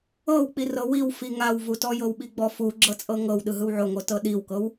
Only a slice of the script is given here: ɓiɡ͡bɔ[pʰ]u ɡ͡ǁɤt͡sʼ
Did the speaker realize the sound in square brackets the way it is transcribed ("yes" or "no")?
no